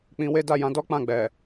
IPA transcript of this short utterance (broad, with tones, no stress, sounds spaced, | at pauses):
k͡p ĩ˧ w e˦ d a˦˨ j ã˨˦ d ɔ˦ k͡p ã˦˨ ɡ͡b ɛ˨